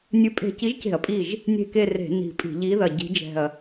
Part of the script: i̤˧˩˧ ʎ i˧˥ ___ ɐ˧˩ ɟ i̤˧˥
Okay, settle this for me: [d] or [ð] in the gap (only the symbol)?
ð